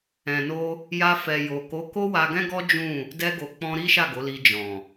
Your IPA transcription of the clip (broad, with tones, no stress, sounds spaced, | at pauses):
ɛ̃˨ n o˧ | j a˧ f ɛ˨ j o˨ k o˨˦ k o˦ w a˧ ɡ ɛ̃˦ ɡ ɔ˦ d͡ʒ ũ˦˨ | d ɛ˧ ɡ o˨ k͡p ɔ̃˧ ɾ i˦ ʃ a˦˨ ɡ o˨˦ l i˧ d͡ʒ ɔ̃˨